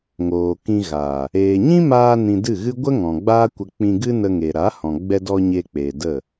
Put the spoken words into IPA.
ŋ oː˨ k ĩ˧ ɣ aː˨ | eː˨ ɲ ĩ˦ m aː˧ n ĩ˧ d ɨ˦˨ ɣ ɨ˦ ɡʷ ə˦ ŋ ɔ̃˨ ɡ͡b aː˦ kʷ ə˧ k͡p ĩ˧ ɡ ɨ˦ n ə˧ ŋ e˨ ɾ a˨˦ h ɔ̃˨ ɡ͡b ɛ˧ d ɔ˧ ɲ e˧ k͡p eː˨ d ə˦˨

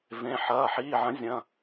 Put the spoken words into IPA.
v ẽ˩˧˩ ħ ɐː˩˧˩ ħ iː˩˧˩ ʕ ɐ̃˩˥ zʲ ɐ̃˩˧˩

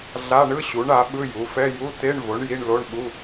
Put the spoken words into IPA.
ɮ a˧˥˧ ɳ ɯ˧˥˧ ɕ u˩˥ ɳ a˩˥ ɓ ɯ˧˥˧ j u˩˥ f ɛ˧˥˧ j u˧˥˧ t e˧˥˧ ɳ v o˩˥ ɳ j i˧˥˧ ɳ l o˧˥˧ ɳ ɓ u˧˥˧

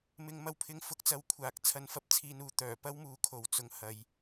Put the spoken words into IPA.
m ɪ˨ ŋ m ɐ˧ w pʰ ɪ˧ ŋ f ʊ˨˥ k̚ t͡s ɐ˨˥ w kʷʰ aː˨˥ k̚ t͡sʰ ɐ˧ n f ɐ˥ p̚ t͡sʰ iː˧ n uː˧ t̪ œː˨˩ p ɐ˥ w m uː˨˥ kʰ o˨ w t͡s ʊ˧ ŋ h ɐ˨˧ j

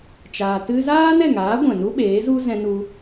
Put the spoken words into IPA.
t͡ʃ aː˧ t ɨ˦ z aː˦ n ɛ˦˨ ŋ aː˨˦ ɡʷ ɛ̃˨ n u˦ ɓ eː˨˦ z u˦ z ɛ̃˧ n u˧

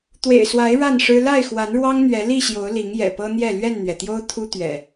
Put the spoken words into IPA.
t̪ w ḛ˨˩ ɪ̯ s w a˨˦ ɪ̯ ɻ a˥˨ n ʂ ɻ̩˦ l a˥˨ ɪ̯ x w a˨˦ n ɻ w ɑ˦ ŋ n̪ ɥ ɛ˨˦ l i˥˨ ɕ j o˨˦ ʊ̯ l i˨˦ ŋ j ɛ̰˨˩ p ɤ˦ n̪ j ɛ˥˨ l ɥ ɛ˥˨ n n̪ ɥ ɛ˩ t̪ j o˦ ʊ̯ t̪ʰ u˦ t̪ ɥ ɛ̰˨˩

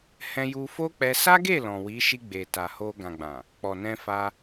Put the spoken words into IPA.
h ɛ̃˧ j u˧ f o˦ k͡p ɛ˧ s a˦ ɡ e˦˨ l ɔ̃˨ w i˨˦ ʃ i˧ ɡ͡b e˨ t a˨ h o˧ ɡ ã˨ ɡ͡b ã˨ | k͡p ɔ˨ n ɛ̃˧ f a˧

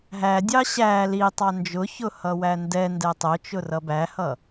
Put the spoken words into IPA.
ɦ æ dʲ ɑ ɕ æ l i tˤ ɑ n d͡ʒ ʊ ç ʊ h ʌ w æ n d ɛ n d ɛ tˤ ʊ t͡ʃ ʊ r ʌ b æ h ʌ

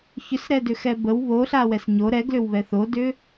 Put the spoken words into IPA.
ç ʏ s ɾ ɛ d ʏ x ɛ b ə w β o ɬ a w ɛ s ɲ o ɾ ɛ ɡ l ʏ w β ɛ θ o d ʏ

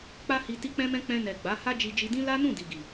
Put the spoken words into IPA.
k͡p a˦ h i˧ t i˦ k͡p ɛ̃˦ m ɛ̃˦ k͡p ɛ̃˧ n ɛ˨ ɡ͡b a˨˦ h a˦ d͡ʒ i˧ d͡ʒ i˧ d ĩ˦ l a˦ n ũ˦˨ d i˨ ɡ i˨

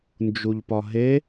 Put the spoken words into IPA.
n d͡ʒ u ʎ p ɒ ɦ e

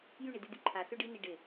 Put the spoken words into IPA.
j y ɳ i d y d̪ y ǃʰ a s ø ɖ i n i ɖ ɪ

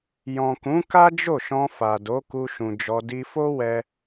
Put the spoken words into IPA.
j ɔ̃˨ k ũ˨˦ k a˦ d͡ʒ o˦˨ ʃ ɔ̃˧ f a˨ d o˨˦ k u˧ ʃ ũ˨ d͡ʒ ɔ˧ d i˧ f o˦ w ɛ˦

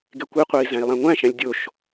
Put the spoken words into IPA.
ɡ e kʷ i qʷ æ i̯ z æ̃ i̯ lˠ æ̃ ŋʷ æ̃ ʃ æ̃ lʲ dʲ o ʃ

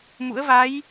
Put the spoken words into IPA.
m ṵ˧˥ ə̯ v a˨˦ j

